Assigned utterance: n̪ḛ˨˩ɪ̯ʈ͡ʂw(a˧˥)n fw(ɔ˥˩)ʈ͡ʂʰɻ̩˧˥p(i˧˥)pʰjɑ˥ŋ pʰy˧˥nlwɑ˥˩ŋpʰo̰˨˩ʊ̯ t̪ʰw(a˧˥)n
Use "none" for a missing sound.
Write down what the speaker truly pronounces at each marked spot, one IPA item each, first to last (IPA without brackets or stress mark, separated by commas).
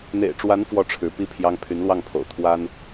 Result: a˧˥, ɔ˥˩, i˥, a˥